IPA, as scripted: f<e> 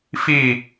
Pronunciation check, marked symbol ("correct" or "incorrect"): incorrect